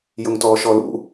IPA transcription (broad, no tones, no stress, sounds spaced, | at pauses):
j ʊ ŋ t ɔː ʃ ɔ l ṵ